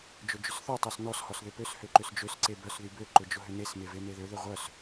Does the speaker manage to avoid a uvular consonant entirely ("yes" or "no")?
no